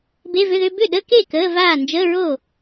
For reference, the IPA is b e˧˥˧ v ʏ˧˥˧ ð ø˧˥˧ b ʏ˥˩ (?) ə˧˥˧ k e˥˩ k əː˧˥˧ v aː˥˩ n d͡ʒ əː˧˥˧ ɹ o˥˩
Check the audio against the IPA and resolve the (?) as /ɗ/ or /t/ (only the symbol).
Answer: ɗ